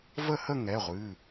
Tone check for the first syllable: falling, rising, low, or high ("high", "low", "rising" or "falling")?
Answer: falling